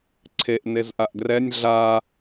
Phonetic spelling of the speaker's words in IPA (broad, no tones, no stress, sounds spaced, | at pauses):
ǀʰ e ʔ n e z ʔ a ʔ ɡ r ɛ nʲ ɮ a